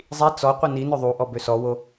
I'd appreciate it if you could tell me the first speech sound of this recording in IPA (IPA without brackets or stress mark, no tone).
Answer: zˤ